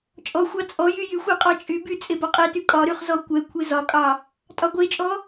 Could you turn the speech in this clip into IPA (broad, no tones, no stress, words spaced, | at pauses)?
t͡ʃʼɔxʷɑ t͡sʼɔjy jyxʷe qʼɑt͡ʃʼyby t͡sʼebɒqʼety kʼɒɾyχ zɔkʷɛkʷʰe zɒkʼɑ | tʼɒɡʷet͡ʃʼɔ